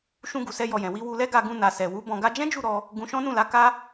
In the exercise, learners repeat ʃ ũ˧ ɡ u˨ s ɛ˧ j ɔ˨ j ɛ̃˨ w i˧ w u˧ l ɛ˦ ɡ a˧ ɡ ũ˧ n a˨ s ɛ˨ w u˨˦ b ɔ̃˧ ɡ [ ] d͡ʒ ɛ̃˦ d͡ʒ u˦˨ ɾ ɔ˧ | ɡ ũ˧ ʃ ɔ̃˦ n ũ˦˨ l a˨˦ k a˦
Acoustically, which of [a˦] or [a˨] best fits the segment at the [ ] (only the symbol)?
a˦